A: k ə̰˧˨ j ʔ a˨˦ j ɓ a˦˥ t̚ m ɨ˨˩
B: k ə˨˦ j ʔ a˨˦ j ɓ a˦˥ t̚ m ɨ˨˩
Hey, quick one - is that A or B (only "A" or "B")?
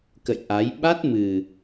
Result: A